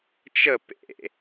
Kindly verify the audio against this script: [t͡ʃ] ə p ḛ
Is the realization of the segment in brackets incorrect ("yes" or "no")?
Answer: no